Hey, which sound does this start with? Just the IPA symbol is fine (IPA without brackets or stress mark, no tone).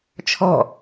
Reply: t͡ʃʰ